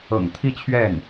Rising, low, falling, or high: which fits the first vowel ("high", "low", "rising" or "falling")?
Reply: low